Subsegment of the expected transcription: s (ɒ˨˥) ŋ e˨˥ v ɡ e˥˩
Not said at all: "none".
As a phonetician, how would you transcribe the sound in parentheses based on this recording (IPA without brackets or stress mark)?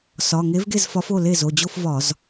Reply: ɒ˩˧˩